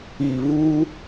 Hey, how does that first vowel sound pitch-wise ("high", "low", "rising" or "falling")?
low